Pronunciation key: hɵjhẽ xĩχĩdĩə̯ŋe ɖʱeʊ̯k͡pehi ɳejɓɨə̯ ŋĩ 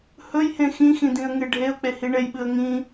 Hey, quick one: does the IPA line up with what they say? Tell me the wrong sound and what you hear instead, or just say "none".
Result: χ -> x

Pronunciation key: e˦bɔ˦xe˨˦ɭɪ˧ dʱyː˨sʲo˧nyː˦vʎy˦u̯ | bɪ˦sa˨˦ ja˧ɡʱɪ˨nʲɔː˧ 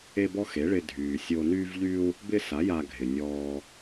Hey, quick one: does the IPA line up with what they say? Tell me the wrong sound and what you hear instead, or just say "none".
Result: none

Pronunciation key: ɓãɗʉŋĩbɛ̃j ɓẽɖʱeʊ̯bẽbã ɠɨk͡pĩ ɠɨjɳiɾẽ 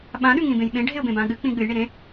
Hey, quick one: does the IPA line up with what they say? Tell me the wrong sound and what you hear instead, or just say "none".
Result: ɛ̃ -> ẽ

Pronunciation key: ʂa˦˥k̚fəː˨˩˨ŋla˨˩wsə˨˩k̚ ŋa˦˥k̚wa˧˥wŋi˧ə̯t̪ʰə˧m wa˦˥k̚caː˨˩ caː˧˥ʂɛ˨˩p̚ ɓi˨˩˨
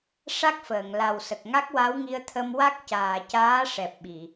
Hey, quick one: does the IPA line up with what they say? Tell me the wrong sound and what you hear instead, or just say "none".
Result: none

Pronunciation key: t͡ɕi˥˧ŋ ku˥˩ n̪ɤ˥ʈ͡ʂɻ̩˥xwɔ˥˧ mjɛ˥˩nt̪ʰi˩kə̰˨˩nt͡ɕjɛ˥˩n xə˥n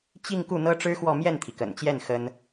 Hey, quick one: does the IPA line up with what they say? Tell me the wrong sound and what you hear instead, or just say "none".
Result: none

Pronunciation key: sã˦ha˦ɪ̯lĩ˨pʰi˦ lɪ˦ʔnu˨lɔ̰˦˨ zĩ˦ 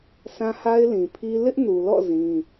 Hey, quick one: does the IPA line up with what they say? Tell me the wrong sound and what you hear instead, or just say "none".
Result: none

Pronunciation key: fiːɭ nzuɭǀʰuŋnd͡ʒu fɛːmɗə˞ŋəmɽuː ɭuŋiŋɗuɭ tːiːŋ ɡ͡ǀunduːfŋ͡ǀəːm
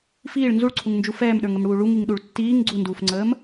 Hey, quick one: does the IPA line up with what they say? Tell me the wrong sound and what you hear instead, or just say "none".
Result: none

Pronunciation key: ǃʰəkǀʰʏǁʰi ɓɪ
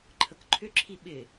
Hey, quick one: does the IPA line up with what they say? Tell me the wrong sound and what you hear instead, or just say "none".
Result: ǀʰ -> ǃʰ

